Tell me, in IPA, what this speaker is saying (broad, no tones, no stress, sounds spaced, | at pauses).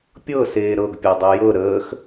pʲ ɤ s eː ɾ ɤ ɡ pʲ ɤ dˤ e j ɤ ɾ əː x